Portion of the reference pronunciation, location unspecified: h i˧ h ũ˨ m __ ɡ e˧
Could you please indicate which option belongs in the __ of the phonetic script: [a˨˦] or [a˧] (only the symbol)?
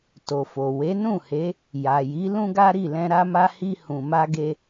a˧